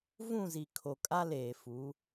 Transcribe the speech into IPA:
v ũ˦˨ z i˨ kʰ o˨ kʼ a˦ l eː˨ f u˨˦

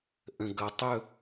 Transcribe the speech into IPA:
ʔ ə̃˨ ɡ ʌ˨˦ tˤ ɵ˦˨

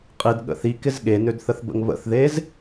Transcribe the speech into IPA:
qʼ i d ɠ ə̰ θ i k ɪ z ɠ e n ø d θ ə θ b ə̰ ŋ β ə̰ θ ð e z

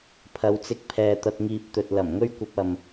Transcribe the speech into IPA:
pʰ ɐ˨˧ w t͡s ɪ˧ k̚ pʰ ɛː˨ t̪ ɐ˧ t̚ ŋ iː˧ p̚ t̪ ɵ˨ t̚ l ɐ˨˩ m ŋ ɵ˥ ɥ kʷ ɐ˧ p̚ ɐ˨ m

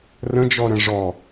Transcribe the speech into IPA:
r ə̃ d͡ʒ ɔ ɾ ə̃ ʐ ɔ

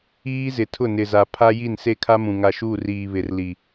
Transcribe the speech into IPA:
iː˦ z ɪ˨ tʰ ʊ˦˨ n ɪ˨ z a˨ pʰ a˦ j i˦˨ n s e˦ kʰ a˦ m ũ˨ ŋ a˨ ʃ uː˦˨ r iː˨ β ɪ˨ r l i˨

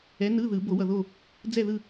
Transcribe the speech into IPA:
ɛ˨˥ n ɯ˧˥˧ ð ɯ˨˩˦ b o˨˩˦ w ʌ˨ ð o˦˨ | d͡z ɛ˦˨ ð ɯ˦˨

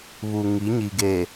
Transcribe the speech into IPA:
β u˨ ŋ i˨˦ ɲ i˨ ɡ e˨

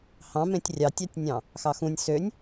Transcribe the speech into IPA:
h ɑ̃ m ẽ tʲ rʲ ɑ tʲ ɑ tʲ nʲ ɑ̃ | x ɑ x ũ nʲ s ø nʲ

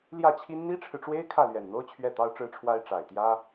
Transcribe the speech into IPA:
l j ä˥˩ t͡ɕʰ i˥ n n̪ i˥ ʈ͡ʂʰ ɻ̩˨ ʈ͡ʂ w e˥ ɪ̯ kʰ ä˥˩ l ɥ ɛ˨˩ n n̪ o˥ ʊ̯ t͡ɕʰ ɥ ɛ˥˩ t̪ ɑ˥ ʊ̯ ʈ͡ʂ ɻ̩˥ ʈ͡ʂʰ w a˥ ɪ̯ ʈ͡ʂ a˨˩ ɪ̯ t̪ j ä˥

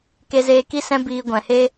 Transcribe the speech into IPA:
k e˦ z eː˦ k i˦ s ɛ̃˦ b iː˧ ɡʷ ɛ̃˨ h e˦

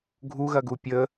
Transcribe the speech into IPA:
ɡʱ u ɣ ɐ ɡ u pʲ ə

